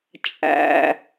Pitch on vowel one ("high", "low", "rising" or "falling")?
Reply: low